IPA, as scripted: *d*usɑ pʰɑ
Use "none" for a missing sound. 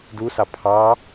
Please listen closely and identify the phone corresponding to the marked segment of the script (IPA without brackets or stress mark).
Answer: d